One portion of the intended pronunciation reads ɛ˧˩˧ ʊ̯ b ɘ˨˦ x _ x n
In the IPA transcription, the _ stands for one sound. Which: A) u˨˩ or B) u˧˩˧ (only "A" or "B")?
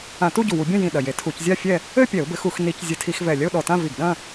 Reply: B